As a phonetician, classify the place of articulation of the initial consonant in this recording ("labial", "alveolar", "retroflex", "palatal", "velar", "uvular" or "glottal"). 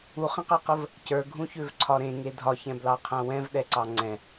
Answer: uvular